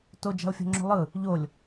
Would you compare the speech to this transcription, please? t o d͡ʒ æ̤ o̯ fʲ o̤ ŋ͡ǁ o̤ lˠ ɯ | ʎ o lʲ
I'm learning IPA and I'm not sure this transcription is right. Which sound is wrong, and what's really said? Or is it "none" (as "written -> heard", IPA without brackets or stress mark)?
none